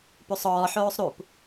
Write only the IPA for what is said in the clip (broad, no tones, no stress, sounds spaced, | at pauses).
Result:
p u sˤ ɔː ħ oː sˤ ɾ u p